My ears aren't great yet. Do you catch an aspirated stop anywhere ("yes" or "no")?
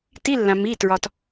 no